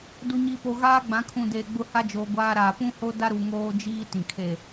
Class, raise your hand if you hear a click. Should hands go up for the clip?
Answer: no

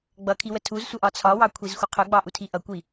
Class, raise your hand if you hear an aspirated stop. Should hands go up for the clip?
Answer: yes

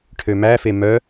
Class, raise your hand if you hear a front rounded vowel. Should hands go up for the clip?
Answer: yes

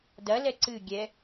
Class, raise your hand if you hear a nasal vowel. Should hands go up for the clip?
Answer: no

